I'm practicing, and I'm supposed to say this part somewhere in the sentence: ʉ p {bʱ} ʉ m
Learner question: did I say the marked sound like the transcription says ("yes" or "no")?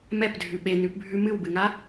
yes